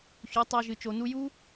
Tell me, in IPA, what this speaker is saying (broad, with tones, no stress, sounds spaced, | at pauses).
ç u˨˦ tˤ a˧ ʒ ɨ˧ t͡ʃ o˧ n u˦ j u˦